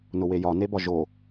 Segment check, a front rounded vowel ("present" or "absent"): absent